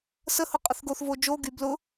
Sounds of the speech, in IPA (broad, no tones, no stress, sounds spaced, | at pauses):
s ə h ʊ qʼ ə θ ɡ o θ v o d͡ʒ o ɡ y b l ʊ